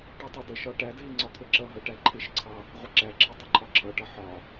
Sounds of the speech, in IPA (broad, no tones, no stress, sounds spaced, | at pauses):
ʈ ɪ tˤ ʌ d ə ʃ ɒ ʈ æ d ɦ ɪ ŋ͡ǀ ɒ t̪ʰ ə ǁ ʌ ɦ ʌ ʈ æ ǃʰ ɪ ʃ ǀʰ ɑ | ʁʷ ɪ ǁ æ ǁʰ ɪ tˤ ə ǃʰ ɒ ǁʰ ʌ ʈ ʌ ħ ɒ